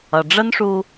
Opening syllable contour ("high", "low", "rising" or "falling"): low